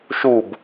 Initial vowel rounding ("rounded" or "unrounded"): rounded